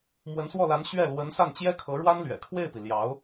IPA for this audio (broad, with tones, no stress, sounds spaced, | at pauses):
m w ə˧˥ n s w ɔ˥˩ l a˧˥ n ɕ ɥ ɛ˥˩ l w ə˧˥ n s a˥˩ n t͡ɕ j ɛ˥ kʰ ɤ˧˥ ɻ w a˥ n l ɥ ɛ̰˨˩ kʰ w e˥˩ ɪ̯ p i˩ l j ɑ˧˥ ʊ̯